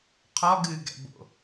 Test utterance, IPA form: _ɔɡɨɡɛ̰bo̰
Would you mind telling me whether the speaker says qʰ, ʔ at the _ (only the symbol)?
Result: qʰ